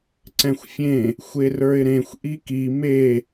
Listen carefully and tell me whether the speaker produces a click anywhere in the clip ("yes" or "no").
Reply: yes